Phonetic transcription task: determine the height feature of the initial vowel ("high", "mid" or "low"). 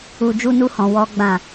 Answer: high